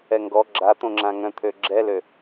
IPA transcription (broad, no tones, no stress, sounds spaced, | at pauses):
ɛ ŋ ɡ ɔ ɡ͡ǁ a t̪ õ ŋ͡ǁ ã ŋ œ̃ t̪ʰ ø ɡ͡ǁ ɛ l ø